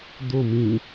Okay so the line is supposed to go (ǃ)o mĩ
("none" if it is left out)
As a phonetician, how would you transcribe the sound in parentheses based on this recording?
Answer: d̪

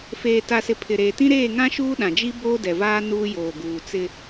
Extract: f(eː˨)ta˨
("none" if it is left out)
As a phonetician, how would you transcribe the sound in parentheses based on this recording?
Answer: eː˨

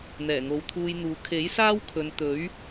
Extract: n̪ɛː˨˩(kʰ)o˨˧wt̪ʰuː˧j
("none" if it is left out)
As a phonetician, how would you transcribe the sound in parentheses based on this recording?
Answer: ŋ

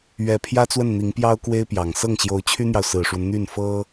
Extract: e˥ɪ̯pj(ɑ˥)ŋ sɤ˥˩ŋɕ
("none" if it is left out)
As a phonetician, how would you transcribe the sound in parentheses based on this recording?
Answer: ɑ˨˩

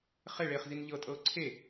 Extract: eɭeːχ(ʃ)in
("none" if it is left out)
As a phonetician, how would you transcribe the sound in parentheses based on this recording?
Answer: z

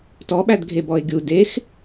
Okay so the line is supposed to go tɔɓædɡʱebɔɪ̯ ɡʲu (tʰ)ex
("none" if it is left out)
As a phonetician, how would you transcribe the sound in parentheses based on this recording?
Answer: d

